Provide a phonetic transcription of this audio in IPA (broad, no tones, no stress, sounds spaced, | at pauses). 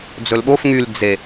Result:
d͡z ɵ l ɓ o f ŋ y l d͡z e